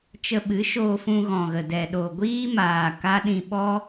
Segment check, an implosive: present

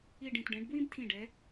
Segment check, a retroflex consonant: present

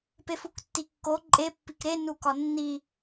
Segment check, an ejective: present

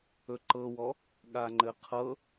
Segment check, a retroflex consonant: absent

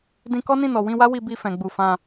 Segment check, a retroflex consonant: absent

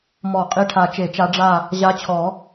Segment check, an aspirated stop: present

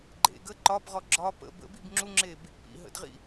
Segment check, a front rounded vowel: absent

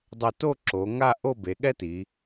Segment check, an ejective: absent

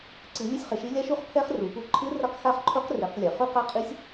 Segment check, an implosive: absent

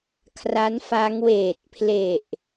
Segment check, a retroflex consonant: absent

